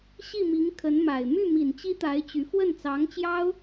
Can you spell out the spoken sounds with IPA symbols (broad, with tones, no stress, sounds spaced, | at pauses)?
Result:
ɕ i˥˩ m i˧˥ ŋ kʰ ə˧˥ n m a˨˩ ɪ̯ m y˥˩ m i˨˩ n t͡ɕ i˥ t̪ a˧˥ ɪ̯ t͡ɕ y˧˥ f w ə˥˩ n t͡s ɑ˧˥ ŋ t͡ɕ j ɑ˥ ʊ̯